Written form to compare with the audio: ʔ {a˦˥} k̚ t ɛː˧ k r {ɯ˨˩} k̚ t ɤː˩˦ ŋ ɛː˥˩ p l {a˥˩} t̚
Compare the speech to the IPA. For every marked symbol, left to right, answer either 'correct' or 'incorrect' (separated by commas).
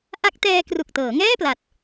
correct, incorrect, incorrect